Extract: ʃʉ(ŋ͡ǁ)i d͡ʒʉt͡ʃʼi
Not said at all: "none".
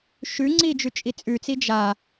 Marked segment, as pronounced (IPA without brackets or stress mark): ŋ͡ǀ